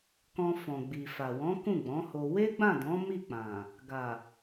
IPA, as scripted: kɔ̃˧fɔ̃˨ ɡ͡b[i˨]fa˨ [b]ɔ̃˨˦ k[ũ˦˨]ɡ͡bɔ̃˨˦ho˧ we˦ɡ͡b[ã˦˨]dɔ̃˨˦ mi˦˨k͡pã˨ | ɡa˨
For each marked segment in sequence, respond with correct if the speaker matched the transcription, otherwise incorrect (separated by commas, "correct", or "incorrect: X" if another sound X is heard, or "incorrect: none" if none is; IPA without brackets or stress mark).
correct, incorrect: w, correct, correct